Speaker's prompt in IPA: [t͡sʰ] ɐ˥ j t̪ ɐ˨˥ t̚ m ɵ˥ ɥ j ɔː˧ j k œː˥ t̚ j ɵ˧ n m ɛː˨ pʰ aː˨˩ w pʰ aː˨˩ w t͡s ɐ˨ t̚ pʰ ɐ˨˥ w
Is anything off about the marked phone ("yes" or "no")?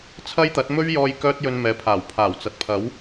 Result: no